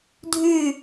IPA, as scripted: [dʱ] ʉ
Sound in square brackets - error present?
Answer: no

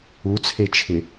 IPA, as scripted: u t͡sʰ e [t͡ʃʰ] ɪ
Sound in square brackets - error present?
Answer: no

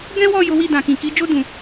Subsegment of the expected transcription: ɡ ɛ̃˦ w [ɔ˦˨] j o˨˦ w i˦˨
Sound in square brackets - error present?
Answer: no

